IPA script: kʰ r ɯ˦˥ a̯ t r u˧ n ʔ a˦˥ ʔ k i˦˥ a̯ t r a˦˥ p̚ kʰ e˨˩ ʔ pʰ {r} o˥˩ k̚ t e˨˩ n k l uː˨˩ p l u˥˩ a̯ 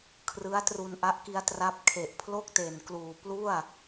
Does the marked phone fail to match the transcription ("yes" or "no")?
yes